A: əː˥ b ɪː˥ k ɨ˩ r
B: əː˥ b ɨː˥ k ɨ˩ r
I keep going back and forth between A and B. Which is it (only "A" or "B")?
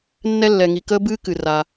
B